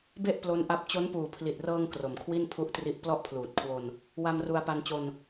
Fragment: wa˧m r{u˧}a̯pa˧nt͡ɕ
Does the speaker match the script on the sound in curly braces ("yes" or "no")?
yes